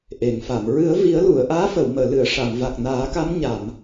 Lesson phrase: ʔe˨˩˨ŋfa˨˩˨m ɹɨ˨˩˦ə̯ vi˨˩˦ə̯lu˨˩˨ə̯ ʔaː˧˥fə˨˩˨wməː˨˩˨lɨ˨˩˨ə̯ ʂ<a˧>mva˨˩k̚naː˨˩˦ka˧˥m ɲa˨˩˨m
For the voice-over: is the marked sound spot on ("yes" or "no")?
no